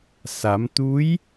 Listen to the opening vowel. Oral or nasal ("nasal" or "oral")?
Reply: oral